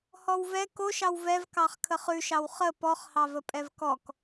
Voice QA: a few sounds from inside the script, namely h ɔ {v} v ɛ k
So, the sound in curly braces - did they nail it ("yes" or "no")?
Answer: no